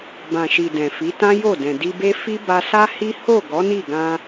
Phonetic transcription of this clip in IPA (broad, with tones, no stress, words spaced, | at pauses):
bã˨ʃi˨ dɛ̃˨fi˨˦ tã˦jo˦˨dɛ̃˨ di˧be˦ fi˦ba˧sa˦hi˦ ho˦˨ ɡɔ˨˦ni˦˨ɡã˧